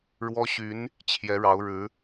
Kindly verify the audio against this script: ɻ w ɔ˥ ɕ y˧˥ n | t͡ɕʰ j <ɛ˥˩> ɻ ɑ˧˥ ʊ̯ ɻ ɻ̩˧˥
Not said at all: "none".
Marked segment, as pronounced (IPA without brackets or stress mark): ɛ˧˥